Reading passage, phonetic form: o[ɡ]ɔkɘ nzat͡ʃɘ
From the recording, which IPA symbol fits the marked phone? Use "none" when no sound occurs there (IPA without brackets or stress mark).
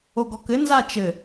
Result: ɡ